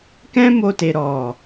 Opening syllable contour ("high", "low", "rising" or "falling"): high